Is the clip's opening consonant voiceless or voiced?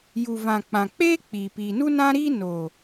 voiced